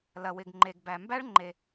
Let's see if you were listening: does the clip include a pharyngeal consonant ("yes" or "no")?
no